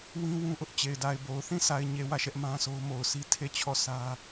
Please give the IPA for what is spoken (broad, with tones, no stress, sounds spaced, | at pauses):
w ĩ˦ w ũ˦ ʔ ʊ˦ ʔ t͡ɕ e˨ ɪ̯ d a˨ ɪ̯ b o˨ ʊ̯ θ ĩ˦˨ s a˨ ɪ̯ ɲ e˨ w ä˦˨ ʃ ɛ˦ ʔ m ã˦ sʰ o˦ ʊ̯ m o˨ ʊ̯ s i˦ tʰ e˦˨ t͡ɕʰ ɔ˦˨ s ä˦